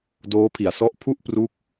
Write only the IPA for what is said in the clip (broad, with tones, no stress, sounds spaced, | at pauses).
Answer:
d oː˦˥ pʰ i˨˩ a̯ s ɔ˦˥ ʔ pʰ u˥˩ ʔ p r u˦˥ k̚